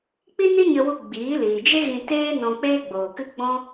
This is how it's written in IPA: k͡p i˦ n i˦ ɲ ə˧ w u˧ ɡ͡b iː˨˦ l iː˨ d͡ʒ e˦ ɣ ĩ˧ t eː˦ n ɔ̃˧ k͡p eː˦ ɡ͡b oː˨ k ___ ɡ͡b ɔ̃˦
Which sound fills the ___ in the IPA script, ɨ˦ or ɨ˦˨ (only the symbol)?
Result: ɨ˦